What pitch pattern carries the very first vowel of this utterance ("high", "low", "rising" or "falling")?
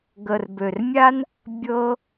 low